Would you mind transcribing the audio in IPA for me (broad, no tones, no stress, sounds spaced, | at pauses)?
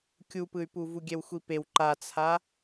kʲ u p ɯ y̯ p u v u ɡʲ ɛ w xʷ i p e w ǃ a t͡sʰ a